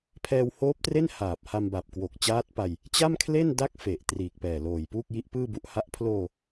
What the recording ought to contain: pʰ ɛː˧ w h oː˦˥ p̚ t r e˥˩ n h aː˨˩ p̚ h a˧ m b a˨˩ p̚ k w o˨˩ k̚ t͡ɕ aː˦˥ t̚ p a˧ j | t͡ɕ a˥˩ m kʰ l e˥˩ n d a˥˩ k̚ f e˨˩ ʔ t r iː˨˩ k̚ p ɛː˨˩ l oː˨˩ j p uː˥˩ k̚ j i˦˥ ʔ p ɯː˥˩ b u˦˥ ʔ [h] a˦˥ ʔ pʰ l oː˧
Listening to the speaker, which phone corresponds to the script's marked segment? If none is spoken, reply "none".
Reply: h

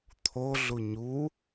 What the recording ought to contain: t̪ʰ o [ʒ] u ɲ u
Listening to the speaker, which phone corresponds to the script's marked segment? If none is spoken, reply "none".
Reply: ɮ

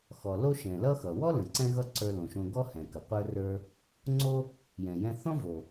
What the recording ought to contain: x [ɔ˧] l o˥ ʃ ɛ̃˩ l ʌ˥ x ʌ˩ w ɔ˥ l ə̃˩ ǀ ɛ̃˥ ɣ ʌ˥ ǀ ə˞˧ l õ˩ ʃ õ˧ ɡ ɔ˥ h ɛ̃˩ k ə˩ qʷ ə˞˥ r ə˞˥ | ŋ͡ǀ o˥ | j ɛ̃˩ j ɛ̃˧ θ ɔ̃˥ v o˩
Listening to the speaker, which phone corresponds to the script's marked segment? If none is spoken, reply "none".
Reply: ɔ˩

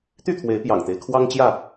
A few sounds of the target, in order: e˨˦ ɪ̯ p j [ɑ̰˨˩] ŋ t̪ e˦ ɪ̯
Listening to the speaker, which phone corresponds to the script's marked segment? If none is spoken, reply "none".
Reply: ɑ̰˨˩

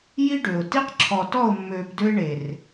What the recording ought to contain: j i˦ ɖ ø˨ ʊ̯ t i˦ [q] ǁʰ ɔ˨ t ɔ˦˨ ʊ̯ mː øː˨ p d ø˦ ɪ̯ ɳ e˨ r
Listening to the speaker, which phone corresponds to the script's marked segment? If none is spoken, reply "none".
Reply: q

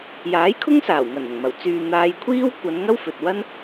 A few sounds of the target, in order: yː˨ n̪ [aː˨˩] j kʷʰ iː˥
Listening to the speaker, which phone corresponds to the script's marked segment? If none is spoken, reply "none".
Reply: aː˧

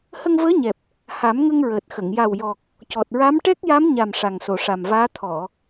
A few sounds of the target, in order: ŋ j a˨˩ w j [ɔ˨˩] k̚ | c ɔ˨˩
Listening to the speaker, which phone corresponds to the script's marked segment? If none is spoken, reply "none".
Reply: ɔ˨˩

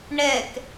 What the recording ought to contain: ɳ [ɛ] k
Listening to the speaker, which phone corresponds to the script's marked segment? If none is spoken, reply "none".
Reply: ɛ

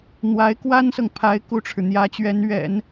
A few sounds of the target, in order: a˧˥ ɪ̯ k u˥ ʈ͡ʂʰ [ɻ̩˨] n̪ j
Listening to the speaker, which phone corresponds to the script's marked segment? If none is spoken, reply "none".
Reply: ɻ̩˨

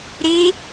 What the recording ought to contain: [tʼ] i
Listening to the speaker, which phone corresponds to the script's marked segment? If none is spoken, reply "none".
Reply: ɾ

